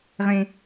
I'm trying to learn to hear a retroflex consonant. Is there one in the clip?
no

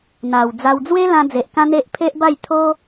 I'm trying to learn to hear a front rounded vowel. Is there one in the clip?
no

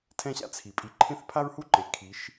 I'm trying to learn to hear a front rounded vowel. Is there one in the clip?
no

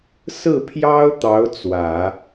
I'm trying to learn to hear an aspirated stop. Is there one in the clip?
yes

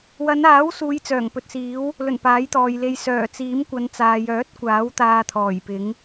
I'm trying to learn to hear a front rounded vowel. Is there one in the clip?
yes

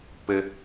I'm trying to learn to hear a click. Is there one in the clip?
no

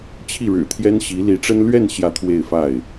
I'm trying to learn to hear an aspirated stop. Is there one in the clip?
yes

